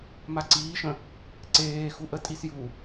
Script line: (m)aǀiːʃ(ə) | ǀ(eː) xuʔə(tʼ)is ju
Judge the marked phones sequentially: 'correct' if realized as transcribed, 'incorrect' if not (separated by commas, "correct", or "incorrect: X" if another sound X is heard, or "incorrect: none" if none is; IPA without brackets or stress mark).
correct, incorrect: ə̃, correct, correct